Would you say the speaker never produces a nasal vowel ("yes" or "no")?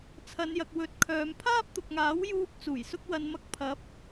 yes